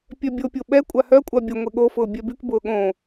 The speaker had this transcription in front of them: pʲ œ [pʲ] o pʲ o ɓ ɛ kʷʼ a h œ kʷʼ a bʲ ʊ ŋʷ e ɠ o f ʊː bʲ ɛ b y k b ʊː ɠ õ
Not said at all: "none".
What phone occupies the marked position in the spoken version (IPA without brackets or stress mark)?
bʲ